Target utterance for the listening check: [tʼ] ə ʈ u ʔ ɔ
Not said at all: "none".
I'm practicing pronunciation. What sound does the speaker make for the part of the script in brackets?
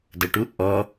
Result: d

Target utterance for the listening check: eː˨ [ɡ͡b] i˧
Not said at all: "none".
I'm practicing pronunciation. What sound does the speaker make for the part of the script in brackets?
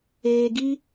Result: ɡ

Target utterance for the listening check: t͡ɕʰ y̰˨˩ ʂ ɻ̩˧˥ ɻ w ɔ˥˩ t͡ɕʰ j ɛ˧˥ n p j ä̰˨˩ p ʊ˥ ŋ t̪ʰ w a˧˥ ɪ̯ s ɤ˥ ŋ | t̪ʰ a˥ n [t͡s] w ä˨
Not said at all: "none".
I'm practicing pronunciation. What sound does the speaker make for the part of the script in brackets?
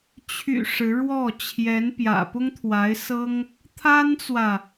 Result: t͡s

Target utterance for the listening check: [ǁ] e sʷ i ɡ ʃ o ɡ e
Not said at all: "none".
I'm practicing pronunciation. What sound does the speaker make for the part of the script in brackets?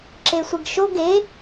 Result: ǁ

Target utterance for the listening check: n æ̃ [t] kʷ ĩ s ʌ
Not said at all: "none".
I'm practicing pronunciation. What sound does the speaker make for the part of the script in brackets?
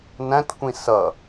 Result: t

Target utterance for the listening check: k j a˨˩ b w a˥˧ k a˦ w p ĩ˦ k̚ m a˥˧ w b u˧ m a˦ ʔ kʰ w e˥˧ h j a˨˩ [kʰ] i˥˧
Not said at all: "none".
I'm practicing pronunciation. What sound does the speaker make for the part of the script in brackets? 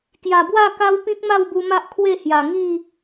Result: ŋ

